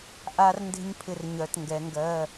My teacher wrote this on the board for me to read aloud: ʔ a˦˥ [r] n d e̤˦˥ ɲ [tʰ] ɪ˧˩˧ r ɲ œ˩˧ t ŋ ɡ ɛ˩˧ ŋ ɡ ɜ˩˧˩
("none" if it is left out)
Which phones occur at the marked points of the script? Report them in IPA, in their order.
r, pʰ

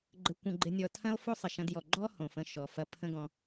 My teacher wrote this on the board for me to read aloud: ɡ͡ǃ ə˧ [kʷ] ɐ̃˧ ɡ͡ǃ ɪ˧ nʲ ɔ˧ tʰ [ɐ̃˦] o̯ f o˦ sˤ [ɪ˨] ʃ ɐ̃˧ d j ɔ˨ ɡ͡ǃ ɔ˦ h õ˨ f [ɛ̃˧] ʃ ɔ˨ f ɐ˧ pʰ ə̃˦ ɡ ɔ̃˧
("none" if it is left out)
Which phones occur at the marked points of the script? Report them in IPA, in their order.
kʷ, ɐ̃˦, ɪ˨, ə̃˧

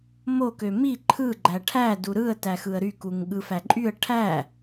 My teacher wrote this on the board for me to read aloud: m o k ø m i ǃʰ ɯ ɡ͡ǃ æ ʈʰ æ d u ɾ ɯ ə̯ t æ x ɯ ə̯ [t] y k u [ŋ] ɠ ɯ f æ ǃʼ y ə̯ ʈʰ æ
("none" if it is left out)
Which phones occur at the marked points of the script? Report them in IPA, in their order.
ɾ, ŋ

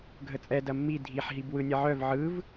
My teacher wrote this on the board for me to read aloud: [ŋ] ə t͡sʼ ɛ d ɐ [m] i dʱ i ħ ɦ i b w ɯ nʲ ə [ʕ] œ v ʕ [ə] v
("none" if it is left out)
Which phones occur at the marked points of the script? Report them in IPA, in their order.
ɡʱ, mː, ʕ, ɯ

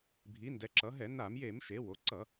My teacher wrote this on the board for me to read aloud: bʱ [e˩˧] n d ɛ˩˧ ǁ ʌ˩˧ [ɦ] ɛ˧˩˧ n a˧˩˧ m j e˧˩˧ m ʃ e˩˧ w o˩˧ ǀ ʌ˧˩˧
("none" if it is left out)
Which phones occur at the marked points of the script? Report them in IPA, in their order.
i˩˧, ɦ

